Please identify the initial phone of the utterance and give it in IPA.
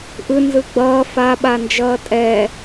ʔ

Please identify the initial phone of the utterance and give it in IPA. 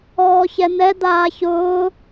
ɔː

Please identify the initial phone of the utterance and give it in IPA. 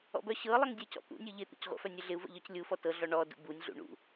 ɔ̰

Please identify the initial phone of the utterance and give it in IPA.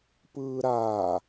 p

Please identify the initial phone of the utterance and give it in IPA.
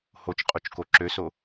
h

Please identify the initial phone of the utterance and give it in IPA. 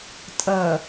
tʼ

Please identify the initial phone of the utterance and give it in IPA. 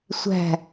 sʷ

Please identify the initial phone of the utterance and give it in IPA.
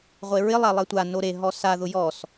ʁʷ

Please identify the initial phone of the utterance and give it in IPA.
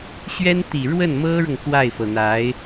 ɕ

